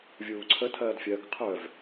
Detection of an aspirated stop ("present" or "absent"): present